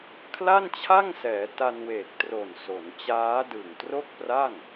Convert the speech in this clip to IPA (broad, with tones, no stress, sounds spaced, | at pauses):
kʰ l a˥˩ n t͡ɕʰ a˥˩ ŋ s ɛː˩˦ t a˧ n w eː˨˩ k̚ t r o˨˩ n s o˩˦ n t͡ɕ aː˦˥ d ɯ˨˩ ŋ t r o˥˩ k̚ p r a˥˩ ŋ